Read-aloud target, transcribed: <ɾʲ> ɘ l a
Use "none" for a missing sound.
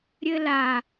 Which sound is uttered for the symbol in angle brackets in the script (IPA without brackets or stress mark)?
ɾʲ